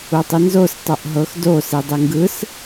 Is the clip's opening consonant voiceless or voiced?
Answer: voiceless